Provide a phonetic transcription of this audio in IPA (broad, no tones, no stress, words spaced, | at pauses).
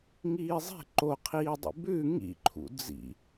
ŋiːzˤe̤ ǃoqʰiːdˤḭ bʉ ŋḭǃʰṵ d͡zḭ